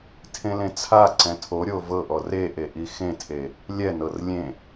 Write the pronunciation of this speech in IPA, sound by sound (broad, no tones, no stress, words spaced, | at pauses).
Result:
tʰẽlẽt͡sʰaǀɛ̃ tʰoɾʲo vɤʔɔ reʔe ʔixẽtʰe | lʲɛnɤr lʲẽ